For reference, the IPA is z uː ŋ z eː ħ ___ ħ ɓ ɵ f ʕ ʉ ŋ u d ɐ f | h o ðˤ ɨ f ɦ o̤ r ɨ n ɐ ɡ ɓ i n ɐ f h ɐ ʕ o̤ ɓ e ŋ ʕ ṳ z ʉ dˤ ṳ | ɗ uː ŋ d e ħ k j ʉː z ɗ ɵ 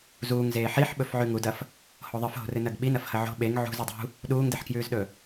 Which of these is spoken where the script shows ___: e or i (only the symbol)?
i